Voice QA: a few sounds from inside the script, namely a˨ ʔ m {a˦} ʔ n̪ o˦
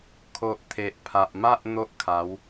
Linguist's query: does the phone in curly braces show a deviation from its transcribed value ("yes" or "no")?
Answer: no